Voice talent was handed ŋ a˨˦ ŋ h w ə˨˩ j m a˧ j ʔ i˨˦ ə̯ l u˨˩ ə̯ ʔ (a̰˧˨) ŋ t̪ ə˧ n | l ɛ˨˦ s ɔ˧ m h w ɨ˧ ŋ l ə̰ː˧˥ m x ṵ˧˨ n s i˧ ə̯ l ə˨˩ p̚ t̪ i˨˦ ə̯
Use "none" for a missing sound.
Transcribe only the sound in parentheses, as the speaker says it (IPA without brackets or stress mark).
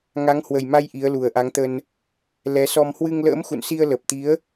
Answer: a˨˦